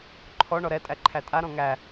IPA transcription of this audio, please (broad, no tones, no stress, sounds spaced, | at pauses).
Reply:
ǃʰ ɔ ɳ ɔ ɾ ɛ tʼ æ ǃʰ æ tʼ a ɾ ɔ̃ ŋ æ